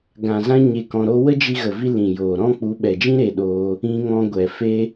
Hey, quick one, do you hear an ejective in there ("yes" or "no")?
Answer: no